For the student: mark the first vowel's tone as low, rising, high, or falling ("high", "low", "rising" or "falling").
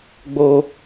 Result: high